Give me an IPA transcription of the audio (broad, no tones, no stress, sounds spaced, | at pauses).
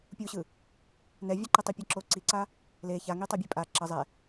pʲ u ɕ ɯ | n ɛ vʲ ɛ ǃ e tˤ i pʲ ʌ ǁ o ǀ i ǀ a | l e ç a ŋ i tˤ a bʲ e pʼ a ǁ ʌ zˤ ɛ